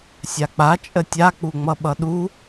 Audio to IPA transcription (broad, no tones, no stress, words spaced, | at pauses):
sʲak͡pa t͡ʃʼətʲa k͡puŋ͡mʌɓʌɗu